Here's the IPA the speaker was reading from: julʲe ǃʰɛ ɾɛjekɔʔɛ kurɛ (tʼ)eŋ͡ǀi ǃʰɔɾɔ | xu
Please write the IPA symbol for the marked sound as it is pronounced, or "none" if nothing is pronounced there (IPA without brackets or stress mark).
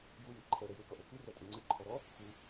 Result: tʼ